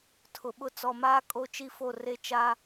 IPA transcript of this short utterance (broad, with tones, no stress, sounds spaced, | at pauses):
tʰ ʊ˨ ɓ ʊ˦ t͡s ɔ˨ m aː˦ kʼ o˦ t͡ʃ i˦ f o˦˨ r e˦ t͡ʃ aː˦